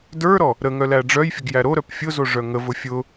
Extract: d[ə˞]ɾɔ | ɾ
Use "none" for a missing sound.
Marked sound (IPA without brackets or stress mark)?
ə˞